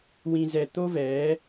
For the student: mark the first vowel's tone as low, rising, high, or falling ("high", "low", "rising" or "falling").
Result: low